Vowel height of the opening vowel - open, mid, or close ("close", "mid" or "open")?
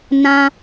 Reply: open